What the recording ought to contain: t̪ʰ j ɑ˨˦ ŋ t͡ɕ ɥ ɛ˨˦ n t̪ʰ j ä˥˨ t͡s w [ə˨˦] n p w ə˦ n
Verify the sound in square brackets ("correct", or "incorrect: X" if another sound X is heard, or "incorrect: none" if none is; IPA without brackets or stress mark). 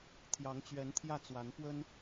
incorrect: a˨˦